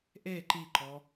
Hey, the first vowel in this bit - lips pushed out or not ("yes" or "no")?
no